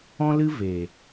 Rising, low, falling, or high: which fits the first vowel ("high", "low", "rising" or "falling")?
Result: high